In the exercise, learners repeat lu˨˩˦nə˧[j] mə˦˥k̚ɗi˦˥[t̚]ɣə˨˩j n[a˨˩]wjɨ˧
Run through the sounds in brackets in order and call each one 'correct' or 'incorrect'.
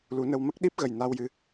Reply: incorrect, incorrect, incorrect

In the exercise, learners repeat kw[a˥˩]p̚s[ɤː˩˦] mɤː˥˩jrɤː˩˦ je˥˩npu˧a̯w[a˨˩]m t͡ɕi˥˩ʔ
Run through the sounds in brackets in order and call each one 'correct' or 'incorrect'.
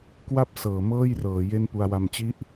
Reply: correct, correct, incorrect

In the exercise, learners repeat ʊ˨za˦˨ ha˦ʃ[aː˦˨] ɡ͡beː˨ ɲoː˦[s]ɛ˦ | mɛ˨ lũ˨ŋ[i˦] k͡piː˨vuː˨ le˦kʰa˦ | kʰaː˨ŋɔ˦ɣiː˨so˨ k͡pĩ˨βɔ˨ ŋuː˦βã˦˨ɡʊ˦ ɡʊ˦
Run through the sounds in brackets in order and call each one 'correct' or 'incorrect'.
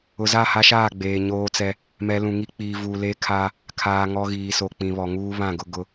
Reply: correct, incorrect, correct

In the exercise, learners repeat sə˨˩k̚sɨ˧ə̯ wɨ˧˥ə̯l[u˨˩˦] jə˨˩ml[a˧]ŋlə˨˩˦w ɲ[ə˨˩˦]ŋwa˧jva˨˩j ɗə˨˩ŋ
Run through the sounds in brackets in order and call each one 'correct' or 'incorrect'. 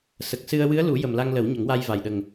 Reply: correct, correct, correct

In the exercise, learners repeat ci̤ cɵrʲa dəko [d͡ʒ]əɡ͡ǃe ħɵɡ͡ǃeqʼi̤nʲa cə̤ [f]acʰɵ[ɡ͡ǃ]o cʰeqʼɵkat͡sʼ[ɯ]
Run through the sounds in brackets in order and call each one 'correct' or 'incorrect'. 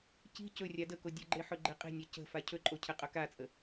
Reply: incorrect, correct, incorrect, incorrect

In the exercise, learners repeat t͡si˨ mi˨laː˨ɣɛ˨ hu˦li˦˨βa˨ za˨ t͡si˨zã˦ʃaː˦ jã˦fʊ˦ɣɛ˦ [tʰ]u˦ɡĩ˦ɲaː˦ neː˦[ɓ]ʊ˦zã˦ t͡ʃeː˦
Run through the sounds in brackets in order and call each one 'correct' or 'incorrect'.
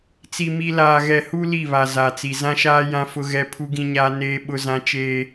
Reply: incorrect, correct

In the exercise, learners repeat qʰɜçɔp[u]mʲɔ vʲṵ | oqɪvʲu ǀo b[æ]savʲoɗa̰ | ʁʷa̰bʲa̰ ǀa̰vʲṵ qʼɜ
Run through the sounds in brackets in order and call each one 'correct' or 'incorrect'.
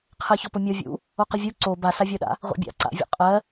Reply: incorrect, incorrect

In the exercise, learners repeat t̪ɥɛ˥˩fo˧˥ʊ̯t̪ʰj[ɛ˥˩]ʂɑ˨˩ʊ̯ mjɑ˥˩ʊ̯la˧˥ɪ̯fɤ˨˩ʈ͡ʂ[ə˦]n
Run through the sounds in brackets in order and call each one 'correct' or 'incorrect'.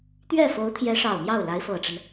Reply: incorrect, correct

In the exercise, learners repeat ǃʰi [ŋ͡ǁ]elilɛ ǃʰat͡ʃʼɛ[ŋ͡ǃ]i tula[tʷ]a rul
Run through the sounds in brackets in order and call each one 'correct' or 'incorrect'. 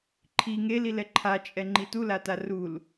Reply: incorrect, correct, incorrect

